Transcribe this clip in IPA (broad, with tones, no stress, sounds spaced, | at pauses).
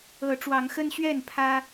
ɤ˨˦ ʈ͡ʂ w ɑ˨˦ ŋ x ə˦ n ɕ ɥ ɛ˥˨ n pʰ ä˦